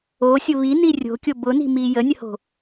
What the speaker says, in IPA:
o sʲ ʊ β i n i rʲ o̤ kʲ o b ʊ n i̤ m i j ə nʲ ə h o̤

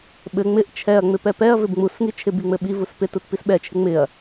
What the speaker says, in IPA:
ɓ ɘ ŋ͡m ɪ ʔ t͡ʃʰ ɛ ɐ̯ ŋ͡m ɪ p ɛ p ɛ ɐ̯ v ɪ b ŋ͡m u s ŋ i t͡ʃʰ ɪ b i ŋ͡m ɘ ɓ i v u s p ɪ t u t p i s ɓ ɛ t͡ʃʰ ɪ ŋ͡m ɪ ɐ̯

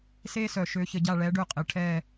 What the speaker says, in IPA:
s eː˥ s œ˨˩˦ ʃ ø˨˥ ç ə˨˩˦ ɟ a˦˨ ɭ ɛː˨˥ ɖ ø˦˨ qʼ ɪː˨ ʈʰ ɛː˦˨

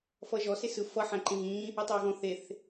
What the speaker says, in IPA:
f ʌː ʒ ɔ s e s ɯ f ʌ ħ æ̃ ǃ ẽ ɣ ĩː | ʌ tˤ ʌː ɣ ɔ̃ θ e θ

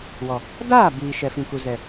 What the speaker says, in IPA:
w ɔ˨ | d aː˦˨ b iː˨ ʃ ɛ˨ f ĩ˨ k u˨ z ɛ˨

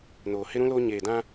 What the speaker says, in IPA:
n oː˨ h ɪ˦ ɾ ũ˦ l o˦ ɲ eː˨ d ã˦

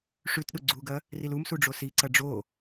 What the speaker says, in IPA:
ʂ ʉ t ɗ u ɡ͡ǀ u ɡ ɐ | r i l u m s u ɖ͡ʐ o s i ǀ ɐ ɖ͡ʐ o

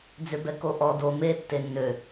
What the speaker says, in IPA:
d͡z ʏ b ɛ k o ʔ ɔ d o m e tː e nː ø

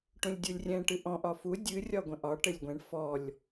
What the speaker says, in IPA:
ʈ ũ lʲ dʲ u lʲ rʲ ɛ̃ ʈ ɨ ʔ ɔ̃ ʔ ɒ f u dʲ ɨ rʲ ɒ ɡʷ ə̃ ʔ ɒ ʈ ɘ lʲ ɡʷ ɛ̃ ɳ f ɔ lʲ

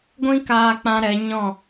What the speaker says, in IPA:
ɡʷ ĩ˦ k aː˧ k͡p ã˧ ɾ ɛ˨˦ ɲ ɔ̃˦˨

